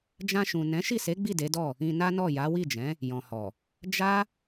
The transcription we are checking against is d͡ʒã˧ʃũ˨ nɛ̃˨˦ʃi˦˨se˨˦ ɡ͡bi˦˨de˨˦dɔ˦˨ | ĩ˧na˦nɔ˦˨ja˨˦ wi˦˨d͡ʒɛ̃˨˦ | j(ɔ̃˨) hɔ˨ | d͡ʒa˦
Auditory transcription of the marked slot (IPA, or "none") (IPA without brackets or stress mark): ɔ̃˨